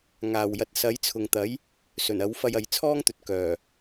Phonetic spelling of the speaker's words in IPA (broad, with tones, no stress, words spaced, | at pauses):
ŋaː˨wjɐ˧t̚ sɐ˨˥jt͡sʰʊ˨ŋt̪ɐ˨˥j | sɵ˨˩nɐ˨˥wfɐ˧j ɐ˨˧jt͡sʰɔː˥ŋt̪ɵ˨t̚ kœː˨˩